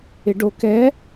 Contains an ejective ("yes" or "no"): no